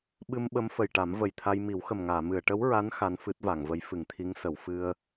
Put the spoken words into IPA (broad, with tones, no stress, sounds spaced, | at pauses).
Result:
ɓ ɨ˧ m ɓ ə˧˥ m f ə˨˩ j ʈ a˨˩˦ m v ə˨˩ j t̪ʰ a˧ j m i˨˩˦ w x ə˨˩ m ŋ aː˨˩˨ m ɨ˨˩˨ ə̯ ʈ ə˧˥ w ɹ a˧˥ n x a˧˥ n f ɨ˦˥ t̚ v a˨˩˨ ŋ v ə˧˥ j f ɨ˨˩˨ ŋ t̪ʰ i˧˥ ŋ s ə˨˩˨ w f ɨ˧ ə̯